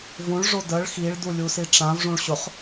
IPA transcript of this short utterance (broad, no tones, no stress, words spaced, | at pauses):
vũɭʐo dəɭ xiɭdulʲusi ʈ͡ʂãvʐũɭ ɕʊχ